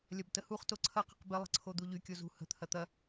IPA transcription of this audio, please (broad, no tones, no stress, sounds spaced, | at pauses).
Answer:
lʲ ɐ b t ə h u χ t o ǀʰ ɐ q ə̤ q b ɪ lˠ ə̤ ǀʰ o d̪ u ʎ y kʲ o z ṳ h ə̤ t̪ʰ ɐ t̪ ɐ